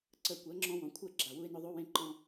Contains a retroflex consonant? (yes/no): no